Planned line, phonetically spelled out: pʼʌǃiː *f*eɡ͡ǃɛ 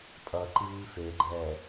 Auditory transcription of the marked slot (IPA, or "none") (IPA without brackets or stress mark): f